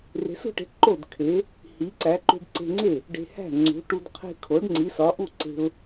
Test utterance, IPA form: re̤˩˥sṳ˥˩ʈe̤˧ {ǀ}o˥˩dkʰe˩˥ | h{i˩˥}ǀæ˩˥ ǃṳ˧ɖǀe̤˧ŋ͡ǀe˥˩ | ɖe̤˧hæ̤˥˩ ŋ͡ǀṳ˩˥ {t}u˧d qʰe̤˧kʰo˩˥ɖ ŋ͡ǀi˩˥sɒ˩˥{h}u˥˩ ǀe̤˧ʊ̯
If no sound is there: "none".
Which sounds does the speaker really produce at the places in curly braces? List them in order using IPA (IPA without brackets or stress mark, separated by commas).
ǃ, i˩˥, ʈ, ʔ